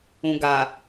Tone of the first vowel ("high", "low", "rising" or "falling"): low